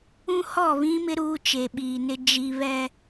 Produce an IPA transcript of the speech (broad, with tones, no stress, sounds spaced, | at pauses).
ũ˦ h ɔ˦˨ β ĩ˦ m ɪ˦ ɾ uː˦ t͡ʃ e˨ ɓ iː˨ n ɪ˦ d͡ʒ i˦ β ɛ˦